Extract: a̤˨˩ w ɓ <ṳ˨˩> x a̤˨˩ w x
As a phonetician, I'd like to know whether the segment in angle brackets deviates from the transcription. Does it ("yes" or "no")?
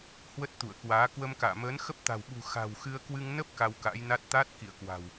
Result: no